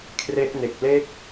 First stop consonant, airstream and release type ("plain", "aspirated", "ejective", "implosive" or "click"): aspirated